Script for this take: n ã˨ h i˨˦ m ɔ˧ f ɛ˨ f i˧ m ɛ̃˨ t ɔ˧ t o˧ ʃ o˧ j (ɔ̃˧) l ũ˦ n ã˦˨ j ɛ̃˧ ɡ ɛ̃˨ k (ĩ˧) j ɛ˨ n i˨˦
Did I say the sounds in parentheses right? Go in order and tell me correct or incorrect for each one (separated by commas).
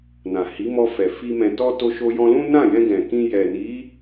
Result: correct, correct